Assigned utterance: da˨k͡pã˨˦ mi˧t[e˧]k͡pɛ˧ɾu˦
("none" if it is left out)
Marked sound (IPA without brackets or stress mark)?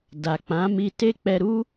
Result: e˦